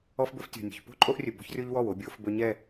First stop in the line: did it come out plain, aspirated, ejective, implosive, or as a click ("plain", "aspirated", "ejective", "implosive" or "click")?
plain